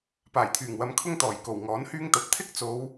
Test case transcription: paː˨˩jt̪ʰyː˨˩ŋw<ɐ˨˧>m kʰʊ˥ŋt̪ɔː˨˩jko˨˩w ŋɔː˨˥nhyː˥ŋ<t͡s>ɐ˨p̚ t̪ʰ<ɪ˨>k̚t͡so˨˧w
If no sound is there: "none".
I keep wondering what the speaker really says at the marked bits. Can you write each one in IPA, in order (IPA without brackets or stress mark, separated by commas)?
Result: ɐ˨˧, t̪, ɪ˥